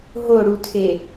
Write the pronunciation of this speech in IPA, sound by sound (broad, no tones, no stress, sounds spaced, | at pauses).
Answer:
ɦ o ɽ u tʰ e